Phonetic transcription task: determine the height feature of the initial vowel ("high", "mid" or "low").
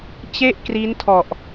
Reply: mid